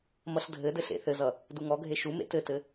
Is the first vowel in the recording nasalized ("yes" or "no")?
no